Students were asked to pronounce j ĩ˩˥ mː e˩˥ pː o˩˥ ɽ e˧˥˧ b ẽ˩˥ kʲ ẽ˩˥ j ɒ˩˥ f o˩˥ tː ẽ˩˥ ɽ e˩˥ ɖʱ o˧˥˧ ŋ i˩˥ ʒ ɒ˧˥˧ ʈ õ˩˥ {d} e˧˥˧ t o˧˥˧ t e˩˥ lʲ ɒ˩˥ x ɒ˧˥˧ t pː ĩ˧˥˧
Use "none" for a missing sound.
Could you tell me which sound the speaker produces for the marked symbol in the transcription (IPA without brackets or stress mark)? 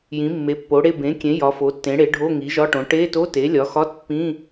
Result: ʈ